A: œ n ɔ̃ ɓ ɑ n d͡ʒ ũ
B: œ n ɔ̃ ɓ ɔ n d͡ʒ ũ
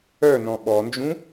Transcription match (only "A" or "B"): B